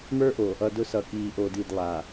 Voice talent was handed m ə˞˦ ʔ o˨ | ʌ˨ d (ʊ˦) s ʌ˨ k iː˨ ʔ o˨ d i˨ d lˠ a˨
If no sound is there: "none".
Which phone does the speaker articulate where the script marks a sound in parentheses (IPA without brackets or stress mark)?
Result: ʊ˦